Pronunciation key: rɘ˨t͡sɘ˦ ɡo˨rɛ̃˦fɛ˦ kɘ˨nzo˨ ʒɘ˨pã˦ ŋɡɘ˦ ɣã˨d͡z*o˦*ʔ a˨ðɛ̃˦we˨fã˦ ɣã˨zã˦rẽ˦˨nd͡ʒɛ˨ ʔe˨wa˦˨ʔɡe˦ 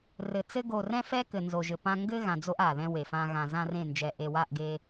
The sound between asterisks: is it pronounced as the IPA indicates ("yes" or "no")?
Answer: yes